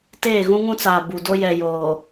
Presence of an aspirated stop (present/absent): absent